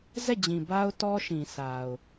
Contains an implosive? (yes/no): no